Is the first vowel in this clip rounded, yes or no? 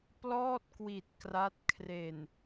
yes